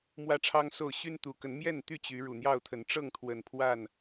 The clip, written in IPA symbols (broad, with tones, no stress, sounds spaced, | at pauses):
m w ä˦ ʈ͡ʂʰ ɑ˦ ŋ s o˥˨ ʊ̯ ɕ y˦ n t̪ u˨˦ k ə˨˦ n m j ɛ˥˨ n t̪ y˥˨ t͡ɕ y˨˦ ɻ u˨˩ n̪ j ɑ˥˨ ʊ̯ t̪ʰ ə˨˦ n ʈ͡ʂ ɤ˥˨ ŋ t̪ʰ w ə˨˩ n pʰ w a˥˨ n